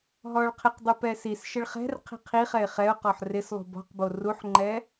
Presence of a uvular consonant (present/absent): present